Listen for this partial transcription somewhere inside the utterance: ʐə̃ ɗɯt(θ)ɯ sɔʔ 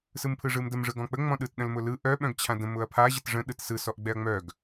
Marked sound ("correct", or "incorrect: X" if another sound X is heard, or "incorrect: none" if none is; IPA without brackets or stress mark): incorrect: s